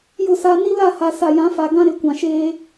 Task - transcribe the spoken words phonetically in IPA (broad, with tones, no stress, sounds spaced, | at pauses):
j ʊ˦˨ s a˦ n i˦ l a˦˨ h a˨ s a˨ j ã˨˦ f a˨ ɡ ã˦ ɾ ɪ˨˦ kʷ ã˨ ʃ eː˦